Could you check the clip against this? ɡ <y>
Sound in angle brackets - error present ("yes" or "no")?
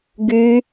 no